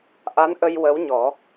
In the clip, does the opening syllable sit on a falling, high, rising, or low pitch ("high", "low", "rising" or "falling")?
rising